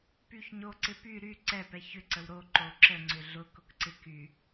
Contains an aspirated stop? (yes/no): no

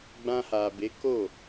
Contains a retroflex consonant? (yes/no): no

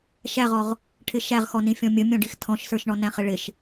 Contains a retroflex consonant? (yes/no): yes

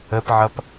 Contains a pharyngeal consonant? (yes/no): yes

